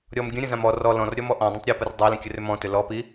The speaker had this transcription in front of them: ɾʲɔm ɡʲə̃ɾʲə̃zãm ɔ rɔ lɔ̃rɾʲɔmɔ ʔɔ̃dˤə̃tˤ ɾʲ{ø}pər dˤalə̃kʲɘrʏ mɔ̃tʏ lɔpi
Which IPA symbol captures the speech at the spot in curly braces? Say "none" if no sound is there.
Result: ø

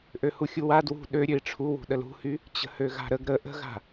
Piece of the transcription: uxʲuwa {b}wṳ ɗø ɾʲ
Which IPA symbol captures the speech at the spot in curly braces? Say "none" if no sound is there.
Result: d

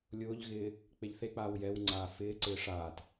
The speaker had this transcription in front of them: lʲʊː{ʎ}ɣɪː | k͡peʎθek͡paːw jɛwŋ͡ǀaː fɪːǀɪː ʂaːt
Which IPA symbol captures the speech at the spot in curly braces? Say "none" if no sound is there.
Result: ʎ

